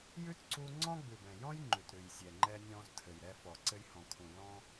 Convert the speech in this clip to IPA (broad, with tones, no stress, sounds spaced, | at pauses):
j ʉ˦ t ǀ u˧ ŋ͡ǀ ɔ̃˦ ɡ͡b ʉ˨ b ɛ̃˨ j ɔ̃˦ j ŋ͡ǃ ʉ˨ t ɾ ʉ˨ j sʲ ɛ˨ ŋ͡ǃ ɛ˧ nʲ ɔ̃˧ z tʰ ɘ˨ j ɾ ɛ˧ f ɔ˨ ǀ ɘ˧ j h ɔ̃˨ kʰ ũ˨ l ɔ̃˦